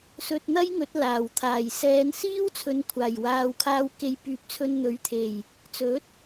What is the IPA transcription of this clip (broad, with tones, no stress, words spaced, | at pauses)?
sɵ˧t̚n̪ɐ˥jŋɵ˨˥t̚ laː˨˩w t̪ʰaː˨˩jsɛː˨˧nsiː˥wt͡sʰɵ˨˧n kʷʰaː˨˩j waː˨wkʰaː˧w ke˨j pyː˨˥p̚t͡sʰɵ˧nn̪ɵ˨˥ɥt̪ʰe˨˩j | t͡sɵ˨˥t̚